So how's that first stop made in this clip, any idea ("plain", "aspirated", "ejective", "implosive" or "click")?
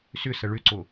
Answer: click